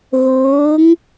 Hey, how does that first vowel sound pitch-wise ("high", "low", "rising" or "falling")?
rising